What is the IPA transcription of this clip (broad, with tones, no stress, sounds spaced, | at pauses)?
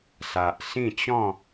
s a˨ ʔ s ĩ˥˧ t͡ɕ ɔ̃˥˧